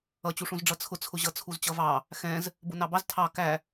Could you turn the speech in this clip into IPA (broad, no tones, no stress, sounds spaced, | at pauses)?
ʌ t͡ɕ u ʂ ũ z ɖ͡ʐ ʌ t͡sʰ ʊ t͡sʰ ʊ ʑ ʌ t͡sʰ u z t͡ɕ ʌ v ɑ | x ɛ̃ z | b ʊ n ɑ b ɑ z tʰ ɑ k æ